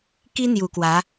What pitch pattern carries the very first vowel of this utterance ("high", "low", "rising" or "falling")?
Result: high